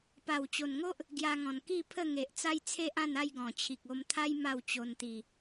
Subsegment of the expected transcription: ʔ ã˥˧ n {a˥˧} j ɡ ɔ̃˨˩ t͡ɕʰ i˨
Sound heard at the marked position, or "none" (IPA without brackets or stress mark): a˥˧